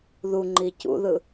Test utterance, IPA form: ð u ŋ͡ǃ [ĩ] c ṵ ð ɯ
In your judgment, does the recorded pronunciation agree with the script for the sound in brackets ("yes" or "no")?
no